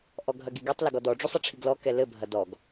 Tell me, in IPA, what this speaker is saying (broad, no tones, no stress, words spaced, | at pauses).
ʔɔɡʱɐɡiɡetˤ lɐɡɔdɔ ɖ͡ʐusˤɐʈ͡ʂʰiɡlɔ kɛlɘ bʱɐdɔɡ